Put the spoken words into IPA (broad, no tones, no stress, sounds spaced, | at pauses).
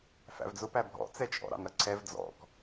f æ̰ v d͡z ʊ p æ bʱ ɔ̰ t͡s ɛ t͡ʃʼ ɔ̰ ɾ ɑ̰ n ɾ ʌ ǀʰ ɛ v d͡z ɔ̰ k